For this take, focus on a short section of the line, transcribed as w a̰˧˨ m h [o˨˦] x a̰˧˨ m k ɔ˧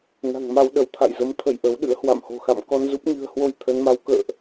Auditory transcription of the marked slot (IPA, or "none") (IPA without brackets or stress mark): o̤˨˩